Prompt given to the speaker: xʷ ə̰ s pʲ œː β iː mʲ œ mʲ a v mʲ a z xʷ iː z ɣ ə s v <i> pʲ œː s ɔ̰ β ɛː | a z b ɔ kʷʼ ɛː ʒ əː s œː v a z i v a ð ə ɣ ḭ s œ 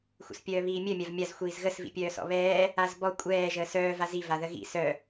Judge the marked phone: incorrect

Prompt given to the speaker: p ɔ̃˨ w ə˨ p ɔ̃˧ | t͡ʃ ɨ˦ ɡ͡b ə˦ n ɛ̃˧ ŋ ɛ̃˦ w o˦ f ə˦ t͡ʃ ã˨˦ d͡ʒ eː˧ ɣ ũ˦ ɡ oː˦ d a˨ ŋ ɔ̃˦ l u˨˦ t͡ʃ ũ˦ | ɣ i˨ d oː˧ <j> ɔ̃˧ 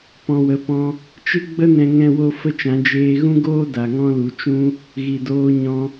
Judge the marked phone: incorrect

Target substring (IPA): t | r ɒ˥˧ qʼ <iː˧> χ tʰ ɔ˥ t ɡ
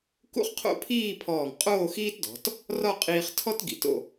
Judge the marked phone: correct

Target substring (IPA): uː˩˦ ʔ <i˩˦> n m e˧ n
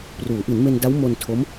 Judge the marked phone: correct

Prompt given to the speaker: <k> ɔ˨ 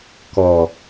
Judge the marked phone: correct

